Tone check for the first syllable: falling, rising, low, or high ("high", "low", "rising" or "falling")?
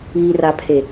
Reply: low